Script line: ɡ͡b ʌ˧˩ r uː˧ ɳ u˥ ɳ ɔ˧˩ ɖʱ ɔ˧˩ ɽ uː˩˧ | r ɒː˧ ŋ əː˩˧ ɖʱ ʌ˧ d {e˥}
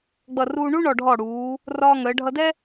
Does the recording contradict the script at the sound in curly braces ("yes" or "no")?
yes